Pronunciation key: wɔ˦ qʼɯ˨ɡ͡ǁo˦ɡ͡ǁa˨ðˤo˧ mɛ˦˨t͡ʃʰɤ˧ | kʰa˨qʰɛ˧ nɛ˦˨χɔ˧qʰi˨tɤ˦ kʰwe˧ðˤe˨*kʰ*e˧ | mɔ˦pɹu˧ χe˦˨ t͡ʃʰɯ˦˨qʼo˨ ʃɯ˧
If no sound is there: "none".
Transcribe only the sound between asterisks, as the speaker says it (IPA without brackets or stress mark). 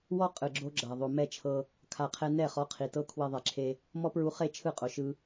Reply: ǁʰ